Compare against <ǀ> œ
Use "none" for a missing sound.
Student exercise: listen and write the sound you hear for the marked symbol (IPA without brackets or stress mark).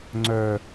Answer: ŋ͡ǀ